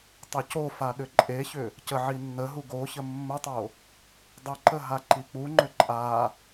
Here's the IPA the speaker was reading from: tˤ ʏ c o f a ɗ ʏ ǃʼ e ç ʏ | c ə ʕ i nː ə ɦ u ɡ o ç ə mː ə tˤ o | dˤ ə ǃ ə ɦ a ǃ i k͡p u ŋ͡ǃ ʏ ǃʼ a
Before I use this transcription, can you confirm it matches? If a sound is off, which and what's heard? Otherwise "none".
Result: none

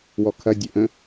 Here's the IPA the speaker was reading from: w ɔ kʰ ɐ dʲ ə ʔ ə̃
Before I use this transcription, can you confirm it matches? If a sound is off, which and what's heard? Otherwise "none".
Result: none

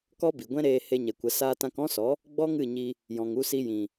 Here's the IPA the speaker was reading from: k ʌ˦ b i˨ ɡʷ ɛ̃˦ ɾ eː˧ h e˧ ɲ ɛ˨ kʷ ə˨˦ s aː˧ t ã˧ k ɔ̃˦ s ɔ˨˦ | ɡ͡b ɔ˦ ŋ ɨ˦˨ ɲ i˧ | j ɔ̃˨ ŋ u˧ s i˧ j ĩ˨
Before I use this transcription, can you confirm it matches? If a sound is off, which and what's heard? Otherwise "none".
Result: ʌ˦ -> ɔ˦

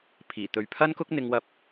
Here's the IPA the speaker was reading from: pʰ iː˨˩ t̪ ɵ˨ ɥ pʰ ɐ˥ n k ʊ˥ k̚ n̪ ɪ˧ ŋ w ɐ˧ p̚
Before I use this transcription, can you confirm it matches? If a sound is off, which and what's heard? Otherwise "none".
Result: none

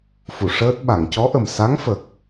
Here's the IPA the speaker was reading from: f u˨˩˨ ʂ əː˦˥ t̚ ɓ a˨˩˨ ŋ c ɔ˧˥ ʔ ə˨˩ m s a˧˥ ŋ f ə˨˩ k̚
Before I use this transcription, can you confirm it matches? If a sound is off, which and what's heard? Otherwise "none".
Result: none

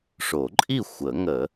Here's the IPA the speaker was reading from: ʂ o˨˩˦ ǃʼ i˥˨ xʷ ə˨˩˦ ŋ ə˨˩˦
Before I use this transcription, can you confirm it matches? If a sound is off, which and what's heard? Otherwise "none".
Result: none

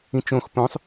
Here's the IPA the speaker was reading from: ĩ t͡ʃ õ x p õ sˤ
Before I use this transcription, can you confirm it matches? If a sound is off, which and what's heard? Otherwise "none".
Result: none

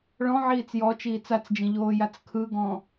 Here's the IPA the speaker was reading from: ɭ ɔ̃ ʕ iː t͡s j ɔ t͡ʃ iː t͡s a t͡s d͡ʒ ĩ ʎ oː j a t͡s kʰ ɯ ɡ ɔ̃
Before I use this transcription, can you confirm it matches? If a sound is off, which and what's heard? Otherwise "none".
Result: none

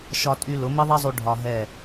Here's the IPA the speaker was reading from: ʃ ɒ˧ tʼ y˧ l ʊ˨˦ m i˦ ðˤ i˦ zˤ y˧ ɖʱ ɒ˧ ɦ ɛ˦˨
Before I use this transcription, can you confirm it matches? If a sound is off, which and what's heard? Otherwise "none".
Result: none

